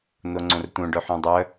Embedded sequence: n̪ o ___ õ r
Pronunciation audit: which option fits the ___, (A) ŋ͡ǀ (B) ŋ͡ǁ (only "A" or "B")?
A